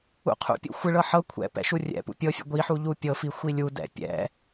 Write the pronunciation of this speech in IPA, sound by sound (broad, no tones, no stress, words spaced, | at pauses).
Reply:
ṵqʰṵpʲṵ xʷɪɭɤ ħɤ kʷʰɛ̰ pɛ̰ʃurʲɛ̰pṵ pʲɤfʲɛ̰ ɡʷiħu ʎupʲɤfi xʷilʲudɛ̰ pʲɛ̰